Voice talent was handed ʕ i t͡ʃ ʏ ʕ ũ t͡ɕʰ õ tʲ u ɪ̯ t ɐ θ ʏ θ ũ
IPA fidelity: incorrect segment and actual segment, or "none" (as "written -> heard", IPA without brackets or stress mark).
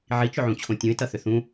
u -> ũ